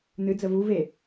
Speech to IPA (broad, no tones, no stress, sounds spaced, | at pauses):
n ɨ d͡z ə v u v e